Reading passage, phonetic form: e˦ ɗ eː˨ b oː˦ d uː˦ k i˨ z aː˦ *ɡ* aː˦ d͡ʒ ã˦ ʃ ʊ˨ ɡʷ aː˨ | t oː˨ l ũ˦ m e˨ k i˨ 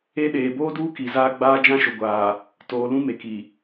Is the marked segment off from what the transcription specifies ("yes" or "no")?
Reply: yes